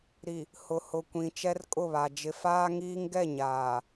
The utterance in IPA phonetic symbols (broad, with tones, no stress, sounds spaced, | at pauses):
ɾ i˨ | h ʊ˨ h ʊ˨ kʷ ĩ˨ t͡ʃ ɛ˦ r kʼ ʊ˦˨ β a˨ d͡ʒ ɪ˨ f aː˦ ŋ iː˦ ŋ ɡ ɛ˦˨ ɲ aː˨